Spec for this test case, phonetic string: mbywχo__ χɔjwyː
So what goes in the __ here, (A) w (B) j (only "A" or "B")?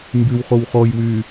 A